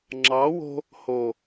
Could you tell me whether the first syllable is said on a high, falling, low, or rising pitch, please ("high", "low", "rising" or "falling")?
rising